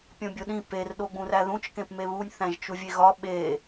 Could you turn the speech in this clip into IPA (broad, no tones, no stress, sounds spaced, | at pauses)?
pʲ õ bʲ o ɗ ĩ p e r ɗ o ɡ͡b ũ r æ ð ũ t͡ʃ k ẽ p m e β u nʲ θ æ̃ ʒ t͡ʃ u vʲ e ɣ ɒ ɓ e